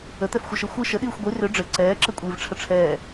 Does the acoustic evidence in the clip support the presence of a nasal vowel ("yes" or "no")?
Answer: no